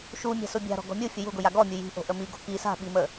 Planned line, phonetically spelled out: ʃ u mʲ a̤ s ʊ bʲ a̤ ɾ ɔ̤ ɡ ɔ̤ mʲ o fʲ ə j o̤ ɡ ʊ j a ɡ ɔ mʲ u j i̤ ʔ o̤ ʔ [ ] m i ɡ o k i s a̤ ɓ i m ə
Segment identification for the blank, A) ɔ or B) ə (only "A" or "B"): B